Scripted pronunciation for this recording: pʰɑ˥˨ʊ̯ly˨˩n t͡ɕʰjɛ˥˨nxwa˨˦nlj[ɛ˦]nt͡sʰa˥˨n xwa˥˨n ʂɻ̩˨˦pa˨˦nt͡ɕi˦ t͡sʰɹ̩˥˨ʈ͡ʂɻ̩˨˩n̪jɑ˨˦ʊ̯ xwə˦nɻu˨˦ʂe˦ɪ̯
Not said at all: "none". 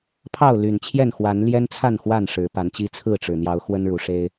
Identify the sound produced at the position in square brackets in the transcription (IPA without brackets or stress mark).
ɛ˦